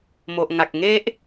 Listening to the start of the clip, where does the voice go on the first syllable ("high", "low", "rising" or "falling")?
low